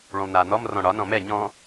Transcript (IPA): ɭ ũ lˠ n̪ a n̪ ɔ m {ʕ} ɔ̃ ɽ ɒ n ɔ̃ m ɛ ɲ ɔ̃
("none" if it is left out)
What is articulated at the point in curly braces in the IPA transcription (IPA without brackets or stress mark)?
r